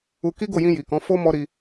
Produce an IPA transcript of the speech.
u˧ k i˦ ɡ o˦˨ j ĩ˧ j i˨ k ɔ̃˨˦ f o˦ m ɔ˦ ɾ i˧

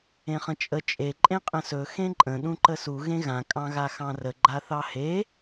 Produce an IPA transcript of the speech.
ẽ χ ə̃ t͡ʃʼ ə t͡ʃʼ e ǃʼ ẽ qʼ ə̃ s ɵ x ẽ ǃʼ ə̃ ɗ ũ ǃ ə s u ɣ ẽ ɣ ã kʼ ɑ̃ ɣ a x ɑ̃ r ə ɡ͡ǃ a θ ɑ h e

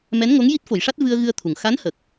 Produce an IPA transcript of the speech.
m ɛ˧˥ n ŋ o˧˥ ŋ j i˦˥ t̚ f o˨˩˦ j ʂ a˦˥ t̚ v ɨ˧ ə̯ ɣ ɨ˧ ə̯ t̪ʰ u˨˩ ŋ x a˧˥ n h ə˨˩ k̚

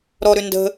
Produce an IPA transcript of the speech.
ɾ ɔ ɾ ʏ n d ə̤

